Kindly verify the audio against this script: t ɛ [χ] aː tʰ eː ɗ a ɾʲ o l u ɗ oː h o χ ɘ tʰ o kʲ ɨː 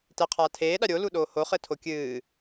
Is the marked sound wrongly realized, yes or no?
yes